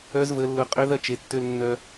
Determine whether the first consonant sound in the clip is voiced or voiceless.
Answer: voiced